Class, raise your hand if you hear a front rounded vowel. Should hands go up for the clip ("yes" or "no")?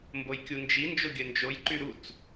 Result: yes